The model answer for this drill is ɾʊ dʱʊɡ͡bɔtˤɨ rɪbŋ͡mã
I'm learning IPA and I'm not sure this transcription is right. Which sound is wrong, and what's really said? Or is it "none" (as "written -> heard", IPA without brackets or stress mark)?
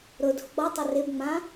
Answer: ɨ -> ɪ